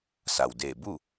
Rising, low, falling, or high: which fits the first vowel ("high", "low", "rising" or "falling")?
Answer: low